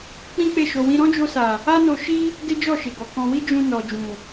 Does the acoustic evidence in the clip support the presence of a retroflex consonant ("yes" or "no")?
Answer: no